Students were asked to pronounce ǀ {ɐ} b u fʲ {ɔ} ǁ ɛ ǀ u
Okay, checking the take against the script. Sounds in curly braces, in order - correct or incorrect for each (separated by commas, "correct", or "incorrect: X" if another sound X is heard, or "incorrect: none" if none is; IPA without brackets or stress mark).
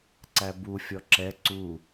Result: incorrect: æ, correct